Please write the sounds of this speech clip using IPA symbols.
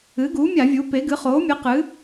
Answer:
ɨ˩˥ɡu˩˥mʲa˧˩˧ vʲu˩˥pe˩˥ɡɨ˩˥ χo˩˥mʲɨ˩˥qɨ˩˥

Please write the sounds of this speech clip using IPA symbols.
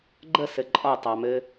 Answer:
ɡ͡ǃəsɘ ǃʼɒtˤɑmɘː

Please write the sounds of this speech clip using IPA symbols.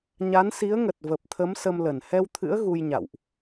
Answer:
ɲa˨˦n si˨˦ə̯ŋə˨˩t̚ və˨˩p̚t̪ʰə˨˦m sə˧mlə˧˩n hɛ˧wt̪ʰɨ̰˧˥ə̯ ɣu˧jɲa̰˧˨wʔ

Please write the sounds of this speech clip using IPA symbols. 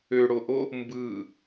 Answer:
øɽoʔo | mbɯ

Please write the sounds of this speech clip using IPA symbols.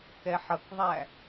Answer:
kɛħʌkðˤæ

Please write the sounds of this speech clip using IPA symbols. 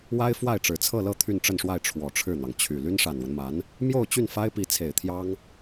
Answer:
wa˥ɪ̯fwa˥˩ɪ̯ ʈ͡ʂɻ̩˨˩t͡sʰɤ˥˧lɤ˥˧ t̪ʰy˥˧nʈ͡ʂə˥˧nʂwa˥˩ɪ̯ ʈ͡ʂʰwɔ˨˩ʈ͡ʂʰɻ̩˥˩n̪ɑ˩ŋ t͡ɕʰy˨˩ ly˥nʂa˨˩nwə˦nma˧˥n | mjo˥˧ʊ̯t͡ɕy˥˩nfa˥ɪ̯ pi˧˥t͡sʰe˨˩ɪ̯t̪ʰjɑ˥ŋ

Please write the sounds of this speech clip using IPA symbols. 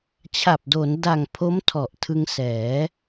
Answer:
t͡ɕʰa˨˩p̚do˩˦n da˨˩ŋ pʰo˦˥mtʰɔ˨˩ʔ tʰɯ˧ŋsɛː˩˦

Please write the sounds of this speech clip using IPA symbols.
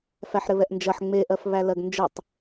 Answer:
fæħɾɘβɛʔnd͡ʒɐħ ŋ͡me ʔɜfβælɜɡnd͡ʒətˤ

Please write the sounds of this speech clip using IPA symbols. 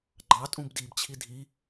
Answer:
ɡ͡ǃɑtʼũb dibt͡ɕʰi dʱi

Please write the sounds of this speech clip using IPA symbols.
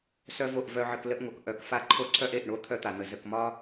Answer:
sœ˦vo˦˨ʔ vœ˦ʕə˦k lə˦ʔŋo˨k ʔœ˨˦kfa˦ǃʰo˦ǀʰœ˦ʔ e˨ʔɳo˦ t̪ʰœ˦t̪a˨n̪ə˨ zə˨kmɒ˦

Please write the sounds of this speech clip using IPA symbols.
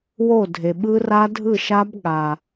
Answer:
wo˥˩dʱe˩ɓɯ˦˥ ra˦˥dʱɯ˥˩ʃa˦˥b ɠa˩

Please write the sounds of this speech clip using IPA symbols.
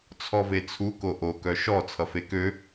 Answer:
t͡sʰɔvet͡sʰu koʔokœ ʃɔ t͡sʰʌfekø

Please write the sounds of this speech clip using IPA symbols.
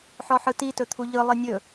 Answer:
ħɔħɯti tɵt̪ʰuʎɯ lˠinʲɵ

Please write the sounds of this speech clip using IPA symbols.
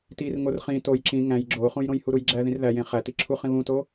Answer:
tir ŋorχĩ toj ǁĩ ŋæ̃j ɡ͡ǁoχũjɾõj huɾujɡ͡ǁæ ðĩrðæjẽ χæ tiǁʰuχĩ βũto

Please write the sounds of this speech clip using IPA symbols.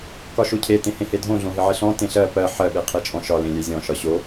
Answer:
kɒʃocʰe tẽhẽhedʱõ ɮõɦɪʕɪɬɔ̃ tẽɬɜ pɜ ħɜ ɓeqʰet͡ʃʼɔ̃ʃɒ lẽlʲezʲɔ̃ ʃɒɕo

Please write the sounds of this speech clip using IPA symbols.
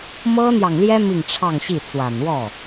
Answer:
mɤ˥n̪jɑ˨ŋljɛ˥ mi˥˧ŋʈ͡ʂʰɑ˥˧ŋɕi˥˩ t͡swa˨˩nwɔ˥˩

